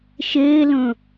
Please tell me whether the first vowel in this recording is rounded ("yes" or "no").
no